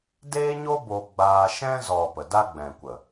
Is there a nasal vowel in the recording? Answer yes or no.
yes